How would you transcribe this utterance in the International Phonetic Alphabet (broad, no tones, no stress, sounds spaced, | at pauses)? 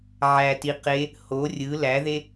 ʕ æ t i q e | h o rʲ ɯ l æ ð e